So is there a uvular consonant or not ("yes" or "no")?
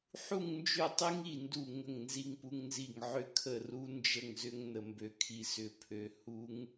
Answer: no